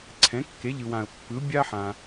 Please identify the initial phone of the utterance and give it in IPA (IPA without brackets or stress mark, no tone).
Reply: ǀʰ